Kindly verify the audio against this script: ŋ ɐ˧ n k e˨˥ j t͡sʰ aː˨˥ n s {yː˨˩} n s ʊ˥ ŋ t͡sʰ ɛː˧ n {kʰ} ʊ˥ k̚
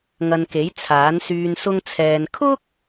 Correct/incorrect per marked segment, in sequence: incorrect, correct

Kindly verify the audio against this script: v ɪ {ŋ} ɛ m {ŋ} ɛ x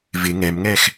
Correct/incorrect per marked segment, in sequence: correct, correct

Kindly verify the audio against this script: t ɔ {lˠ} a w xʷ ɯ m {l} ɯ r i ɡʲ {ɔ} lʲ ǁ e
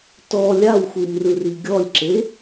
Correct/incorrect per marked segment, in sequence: incorrect, incorrect, correct

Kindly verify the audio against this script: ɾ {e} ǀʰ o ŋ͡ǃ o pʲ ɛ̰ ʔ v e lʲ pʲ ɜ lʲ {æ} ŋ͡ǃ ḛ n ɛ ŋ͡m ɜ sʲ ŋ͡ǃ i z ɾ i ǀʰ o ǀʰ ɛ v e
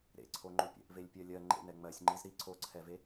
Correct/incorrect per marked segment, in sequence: incorrect, incorrect

